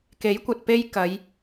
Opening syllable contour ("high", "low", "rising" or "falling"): rising